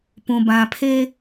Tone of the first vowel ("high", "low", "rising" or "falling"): low